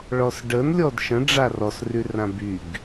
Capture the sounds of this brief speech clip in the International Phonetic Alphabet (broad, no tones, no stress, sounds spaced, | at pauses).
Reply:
ɭ ɔ s ɖ ə n lʲ ɔ d ʃ ə̃ ɖ͡ʐ a r ɔ s r y r ã b y ɡ